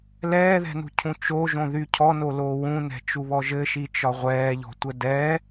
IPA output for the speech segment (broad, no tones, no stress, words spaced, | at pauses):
lɛːðɛ̤nṳcʰũ t͡ʃoʒõðy cʰɔnoloː wũnɛ̤t͡ʃuβɔ ʒɘʃit͡ʃɒ ʁʷɛːʎɔ̤tʷə dɛː